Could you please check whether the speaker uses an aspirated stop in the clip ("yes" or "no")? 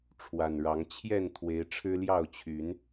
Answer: yes